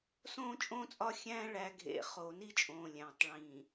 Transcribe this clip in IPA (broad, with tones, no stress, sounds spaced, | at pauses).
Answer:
s õː˦ t͡ʃʼ õː˦ t͡sʼ ɒ˦ xʲ æ̃ː˦ ɭ æ˨ ɡʱ ḛ˨ χ oː˨ n i˦ t͡ʃʼ õː˨ lʲ æ̃ː˨ tˤ ɭ ĩ˨